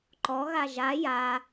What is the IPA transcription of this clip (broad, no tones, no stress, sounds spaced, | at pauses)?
ǃ ɔ ɣ a ʒ a j a